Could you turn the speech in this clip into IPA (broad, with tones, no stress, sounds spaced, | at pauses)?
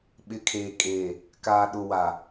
ɓ ɪ˨˦ kʰ eː˨ kʼ eː˨ | k aː˨ ɗ ʊ˨ w a˨